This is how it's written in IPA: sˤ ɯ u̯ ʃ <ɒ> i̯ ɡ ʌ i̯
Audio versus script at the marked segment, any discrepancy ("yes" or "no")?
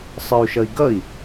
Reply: yes